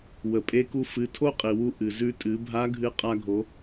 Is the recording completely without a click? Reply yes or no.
yes